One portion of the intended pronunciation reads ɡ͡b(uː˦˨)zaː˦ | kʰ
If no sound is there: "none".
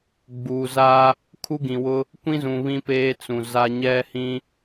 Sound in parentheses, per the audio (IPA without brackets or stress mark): uː˨